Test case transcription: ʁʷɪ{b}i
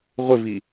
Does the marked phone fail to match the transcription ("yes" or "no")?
yes